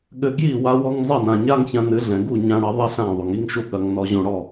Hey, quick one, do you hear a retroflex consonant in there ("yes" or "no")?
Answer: yes